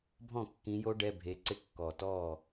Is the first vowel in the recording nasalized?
yes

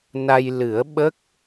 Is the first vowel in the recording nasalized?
no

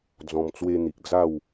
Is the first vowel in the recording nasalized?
yes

